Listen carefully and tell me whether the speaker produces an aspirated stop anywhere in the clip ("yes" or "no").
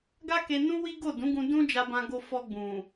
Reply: no